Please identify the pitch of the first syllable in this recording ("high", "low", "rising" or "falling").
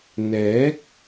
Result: rising